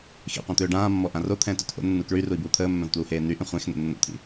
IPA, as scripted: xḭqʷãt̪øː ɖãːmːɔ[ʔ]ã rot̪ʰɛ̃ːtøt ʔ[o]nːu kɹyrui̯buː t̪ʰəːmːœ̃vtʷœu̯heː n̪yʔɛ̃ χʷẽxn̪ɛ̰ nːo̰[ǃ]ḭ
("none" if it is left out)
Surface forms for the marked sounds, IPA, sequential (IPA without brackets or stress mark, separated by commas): ʔ, o̰, t̪ʰ